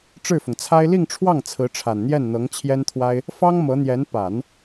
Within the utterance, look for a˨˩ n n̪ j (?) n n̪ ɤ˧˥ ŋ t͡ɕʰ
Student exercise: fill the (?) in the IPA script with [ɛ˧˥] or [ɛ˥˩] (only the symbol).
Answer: ɛ˥˩